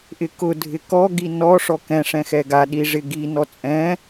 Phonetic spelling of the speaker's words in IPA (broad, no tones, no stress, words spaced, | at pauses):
ʔɪkʊ dʱɪkɔ ɡinɔ ʂɔkɛ̃ ʂɛ̃xɛɡa ɗiʐɪɡi nɔt͡sʼɛ̃